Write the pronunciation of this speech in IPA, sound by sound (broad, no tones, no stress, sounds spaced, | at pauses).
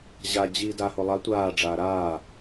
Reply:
ʑ a d͡ʑ iː d a h o lˠ a tʷ aː ɖ͡ʐ aː ɾ aː